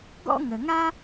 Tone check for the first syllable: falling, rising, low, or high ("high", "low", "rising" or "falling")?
high